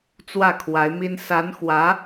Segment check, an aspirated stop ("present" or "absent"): present